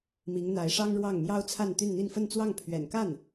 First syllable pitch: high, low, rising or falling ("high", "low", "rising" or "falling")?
rising